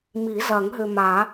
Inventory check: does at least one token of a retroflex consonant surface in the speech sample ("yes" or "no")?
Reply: no